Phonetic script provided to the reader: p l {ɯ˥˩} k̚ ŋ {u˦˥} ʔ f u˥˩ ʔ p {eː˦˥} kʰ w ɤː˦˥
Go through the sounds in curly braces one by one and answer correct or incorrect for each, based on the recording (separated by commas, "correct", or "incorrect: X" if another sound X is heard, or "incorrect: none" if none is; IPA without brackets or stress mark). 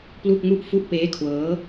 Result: incorrect: u˥˩, incorrect: u˥˩, correct